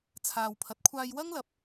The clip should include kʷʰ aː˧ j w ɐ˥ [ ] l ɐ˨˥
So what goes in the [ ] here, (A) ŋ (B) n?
A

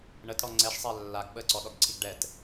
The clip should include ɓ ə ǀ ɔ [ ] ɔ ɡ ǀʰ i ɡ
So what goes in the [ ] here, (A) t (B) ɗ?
B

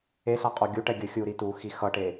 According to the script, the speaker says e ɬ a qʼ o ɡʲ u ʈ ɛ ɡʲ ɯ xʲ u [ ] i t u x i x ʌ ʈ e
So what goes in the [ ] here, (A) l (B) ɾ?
B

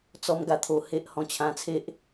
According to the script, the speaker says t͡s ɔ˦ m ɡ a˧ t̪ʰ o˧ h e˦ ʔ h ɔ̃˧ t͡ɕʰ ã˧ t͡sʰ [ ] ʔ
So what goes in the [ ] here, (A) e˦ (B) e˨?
A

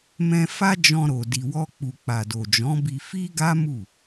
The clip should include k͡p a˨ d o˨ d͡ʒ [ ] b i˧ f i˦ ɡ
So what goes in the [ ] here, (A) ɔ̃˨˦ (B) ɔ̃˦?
A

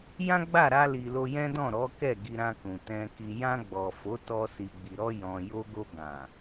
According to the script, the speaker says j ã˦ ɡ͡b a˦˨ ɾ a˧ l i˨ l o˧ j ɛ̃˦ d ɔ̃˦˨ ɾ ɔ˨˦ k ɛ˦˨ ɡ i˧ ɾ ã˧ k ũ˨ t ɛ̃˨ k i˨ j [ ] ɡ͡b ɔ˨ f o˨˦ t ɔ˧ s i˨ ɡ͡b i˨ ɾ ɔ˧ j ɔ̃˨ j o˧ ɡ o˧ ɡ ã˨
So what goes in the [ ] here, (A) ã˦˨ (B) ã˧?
B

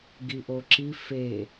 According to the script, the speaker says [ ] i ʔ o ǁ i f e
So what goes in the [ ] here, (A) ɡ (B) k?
A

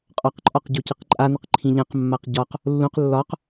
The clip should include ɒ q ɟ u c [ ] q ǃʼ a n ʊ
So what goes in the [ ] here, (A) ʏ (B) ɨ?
B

